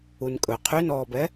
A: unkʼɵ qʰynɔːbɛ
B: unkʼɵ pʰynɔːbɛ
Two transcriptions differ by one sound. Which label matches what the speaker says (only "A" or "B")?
A